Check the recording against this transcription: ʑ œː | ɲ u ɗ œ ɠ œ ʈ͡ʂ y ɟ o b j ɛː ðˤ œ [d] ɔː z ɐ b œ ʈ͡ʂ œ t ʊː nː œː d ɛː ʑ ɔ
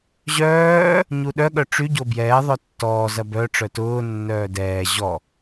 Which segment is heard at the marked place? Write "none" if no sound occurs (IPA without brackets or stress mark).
tː